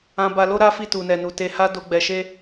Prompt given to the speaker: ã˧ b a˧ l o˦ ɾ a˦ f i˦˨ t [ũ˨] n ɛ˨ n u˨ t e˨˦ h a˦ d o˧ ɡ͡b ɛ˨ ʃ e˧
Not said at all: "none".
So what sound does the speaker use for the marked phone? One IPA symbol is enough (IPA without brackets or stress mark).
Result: u˨